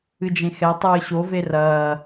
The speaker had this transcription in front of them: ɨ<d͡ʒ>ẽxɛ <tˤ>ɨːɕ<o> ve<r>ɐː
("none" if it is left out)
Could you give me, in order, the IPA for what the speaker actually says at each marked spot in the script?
d͡ʒ, tˤ, o, r

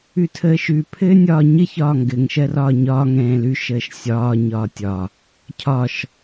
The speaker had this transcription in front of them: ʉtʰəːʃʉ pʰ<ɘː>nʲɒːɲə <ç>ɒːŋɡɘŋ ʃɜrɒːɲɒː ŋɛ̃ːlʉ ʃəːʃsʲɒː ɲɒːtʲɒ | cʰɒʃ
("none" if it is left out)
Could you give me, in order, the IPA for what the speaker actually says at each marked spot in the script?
ɘː, ç

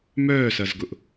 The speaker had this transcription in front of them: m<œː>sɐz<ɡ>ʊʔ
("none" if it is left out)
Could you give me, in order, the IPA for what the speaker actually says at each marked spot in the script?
œː, ɡ

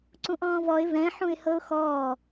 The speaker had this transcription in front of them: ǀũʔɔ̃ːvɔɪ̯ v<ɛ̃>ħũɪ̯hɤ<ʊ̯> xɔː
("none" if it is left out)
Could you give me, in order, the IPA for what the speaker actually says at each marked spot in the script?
ɛ̃, ʊ̯

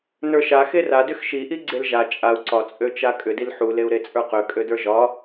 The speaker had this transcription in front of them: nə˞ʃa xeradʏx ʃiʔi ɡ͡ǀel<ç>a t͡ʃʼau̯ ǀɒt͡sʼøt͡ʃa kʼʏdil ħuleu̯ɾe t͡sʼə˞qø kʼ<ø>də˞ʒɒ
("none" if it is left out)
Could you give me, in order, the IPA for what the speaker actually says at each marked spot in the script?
ʒ, ø

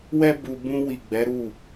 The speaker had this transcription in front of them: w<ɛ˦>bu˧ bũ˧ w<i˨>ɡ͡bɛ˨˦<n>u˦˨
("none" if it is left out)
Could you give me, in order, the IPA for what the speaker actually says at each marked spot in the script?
ɛ˦, i˨, ɾ

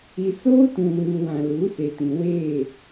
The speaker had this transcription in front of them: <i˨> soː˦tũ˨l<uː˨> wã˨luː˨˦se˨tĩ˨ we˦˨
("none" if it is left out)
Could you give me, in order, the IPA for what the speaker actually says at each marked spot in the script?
i˨, uː˨

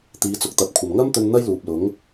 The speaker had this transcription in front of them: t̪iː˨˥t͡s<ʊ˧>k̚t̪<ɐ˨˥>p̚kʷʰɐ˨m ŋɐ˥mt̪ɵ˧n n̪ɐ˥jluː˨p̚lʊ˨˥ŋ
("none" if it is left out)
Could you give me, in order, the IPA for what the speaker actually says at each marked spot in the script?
ʊ˨, ɐ˨˥

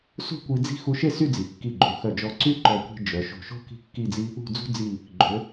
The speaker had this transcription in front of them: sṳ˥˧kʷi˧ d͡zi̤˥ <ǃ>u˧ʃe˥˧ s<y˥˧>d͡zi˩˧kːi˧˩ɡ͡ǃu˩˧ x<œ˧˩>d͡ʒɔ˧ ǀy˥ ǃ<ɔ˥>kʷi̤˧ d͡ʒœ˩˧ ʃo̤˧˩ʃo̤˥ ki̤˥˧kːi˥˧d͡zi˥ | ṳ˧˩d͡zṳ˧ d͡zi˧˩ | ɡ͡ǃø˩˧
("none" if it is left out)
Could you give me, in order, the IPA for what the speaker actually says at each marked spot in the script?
x, y˥˧, œ˧˩, ɔ˧˩

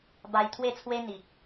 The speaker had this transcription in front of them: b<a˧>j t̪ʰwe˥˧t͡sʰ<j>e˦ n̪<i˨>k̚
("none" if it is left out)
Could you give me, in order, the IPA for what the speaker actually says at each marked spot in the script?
a˧, w, i˨

